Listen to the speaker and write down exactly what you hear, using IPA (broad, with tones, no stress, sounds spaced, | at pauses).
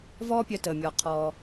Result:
v ɔː˥ pʲ œ˧ t əː˩ mʲ ɔː˩ qʰ ɔː˩